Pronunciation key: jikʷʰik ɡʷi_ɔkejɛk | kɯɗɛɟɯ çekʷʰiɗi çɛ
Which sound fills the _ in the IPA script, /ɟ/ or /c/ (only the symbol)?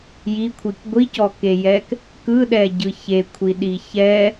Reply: c